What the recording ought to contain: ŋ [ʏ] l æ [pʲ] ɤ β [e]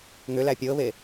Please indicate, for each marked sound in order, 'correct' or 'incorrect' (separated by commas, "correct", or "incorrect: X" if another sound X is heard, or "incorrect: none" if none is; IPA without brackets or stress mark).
correct, correct, correct